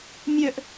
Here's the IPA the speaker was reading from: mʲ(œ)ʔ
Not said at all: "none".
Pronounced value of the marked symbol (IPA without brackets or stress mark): œ